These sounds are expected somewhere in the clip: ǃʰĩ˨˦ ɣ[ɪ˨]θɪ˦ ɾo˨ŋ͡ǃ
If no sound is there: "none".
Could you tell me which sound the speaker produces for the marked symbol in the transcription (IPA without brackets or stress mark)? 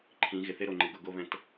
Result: ɪ˨